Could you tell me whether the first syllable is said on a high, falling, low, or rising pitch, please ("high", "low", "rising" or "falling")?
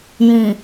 low